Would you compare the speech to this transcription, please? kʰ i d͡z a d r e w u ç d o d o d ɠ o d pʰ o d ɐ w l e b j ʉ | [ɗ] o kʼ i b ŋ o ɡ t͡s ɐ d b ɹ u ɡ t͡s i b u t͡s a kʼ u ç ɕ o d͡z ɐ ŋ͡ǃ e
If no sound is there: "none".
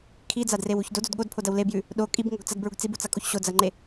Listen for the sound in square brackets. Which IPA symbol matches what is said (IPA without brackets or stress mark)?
ɗ